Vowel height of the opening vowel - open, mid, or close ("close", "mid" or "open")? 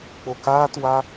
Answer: mid